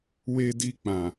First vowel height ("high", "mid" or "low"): mid